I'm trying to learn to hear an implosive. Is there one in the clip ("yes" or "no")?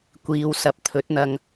no